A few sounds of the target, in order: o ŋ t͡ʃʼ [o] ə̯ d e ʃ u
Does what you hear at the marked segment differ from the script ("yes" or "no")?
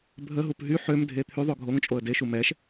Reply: no